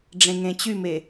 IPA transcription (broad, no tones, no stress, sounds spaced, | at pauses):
ɖ͡ʐ ẽ ŋ ẽ t͡ɕ y m e